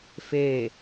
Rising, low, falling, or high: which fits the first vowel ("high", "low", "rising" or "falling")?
falling